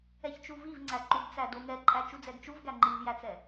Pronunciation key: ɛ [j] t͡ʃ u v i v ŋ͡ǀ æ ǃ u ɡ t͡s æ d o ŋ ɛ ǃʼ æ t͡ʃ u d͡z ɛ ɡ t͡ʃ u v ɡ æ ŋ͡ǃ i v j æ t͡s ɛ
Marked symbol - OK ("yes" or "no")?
no